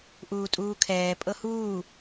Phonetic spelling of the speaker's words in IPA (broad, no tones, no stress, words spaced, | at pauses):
ʔuːtʼuːkʰɛː pʼɤhuː